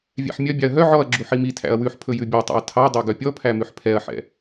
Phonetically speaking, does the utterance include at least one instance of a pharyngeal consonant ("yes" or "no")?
yes